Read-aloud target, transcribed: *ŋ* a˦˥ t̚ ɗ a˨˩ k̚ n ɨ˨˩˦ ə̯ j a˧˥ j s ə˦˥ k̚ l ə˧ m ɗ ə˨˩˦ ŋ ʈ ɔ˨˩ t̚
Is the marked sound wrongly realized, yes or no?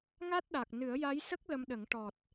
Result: no